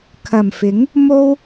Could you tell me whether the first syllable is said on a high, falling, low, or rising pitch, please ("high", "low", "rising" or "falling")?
low